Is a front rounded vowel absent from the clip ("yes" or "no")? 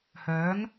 no